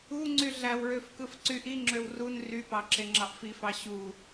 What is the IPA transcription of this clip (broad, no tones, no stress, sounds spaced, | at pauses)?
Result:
u ŋ͡ǀ y ɮ æ w ɹ ø f k ɯ f ǀ y ʔ i ŋ͡ǁ ø w r u n r y p ɑ ǁ e ŋ͡ǁ ɑ ʔ f i f ɑ ɕ u